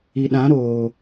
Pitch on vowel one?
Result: low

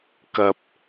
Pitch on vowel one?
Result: high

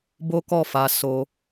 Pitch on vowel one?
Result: high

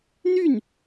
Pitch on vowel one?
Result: falling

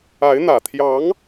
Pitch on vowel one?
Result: rising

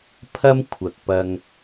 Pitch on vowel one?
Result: high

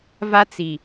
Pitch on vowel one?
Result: high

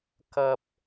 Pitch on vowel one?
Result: low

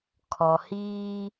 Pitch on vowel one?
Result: low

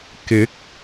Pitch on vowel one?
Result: rising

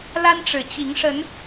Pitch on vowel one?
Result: high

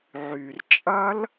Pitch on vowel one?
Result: low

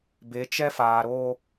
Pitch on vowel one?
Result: rising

